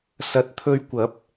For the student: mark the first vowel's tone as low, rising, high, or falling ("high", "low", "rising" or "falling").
rising